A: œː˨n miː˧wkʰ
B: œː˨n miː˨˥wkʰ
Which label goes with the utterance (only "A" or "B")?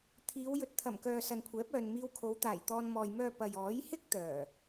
A